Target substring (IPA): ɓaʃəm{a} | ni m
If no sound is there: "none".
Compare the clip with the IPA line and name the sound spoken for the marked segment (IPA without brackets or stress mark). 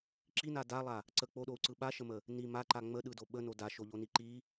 ə